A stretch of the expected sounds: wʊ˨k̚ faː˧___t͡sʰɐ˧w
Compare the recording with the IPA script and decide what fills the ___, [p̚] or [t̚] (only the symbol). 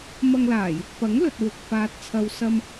t̚